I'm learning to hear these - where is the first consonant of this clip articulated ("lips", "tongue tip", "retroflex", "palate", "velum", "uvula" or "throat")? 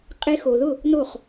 uvula